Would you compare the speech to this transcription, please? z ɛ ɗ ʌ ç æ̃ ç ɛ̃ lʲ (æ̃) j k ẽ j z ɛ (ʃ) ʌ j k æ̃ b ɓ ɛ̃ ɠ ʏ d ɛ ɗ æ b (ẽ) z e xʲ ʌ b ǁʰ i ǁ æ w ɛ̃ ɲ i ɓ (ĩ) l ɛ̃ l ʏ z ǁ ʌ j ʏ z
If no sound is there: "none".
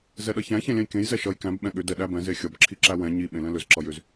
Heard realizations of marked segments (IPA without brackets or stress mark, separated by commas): ɛ̃, ʃ, ɛ̃, ẽ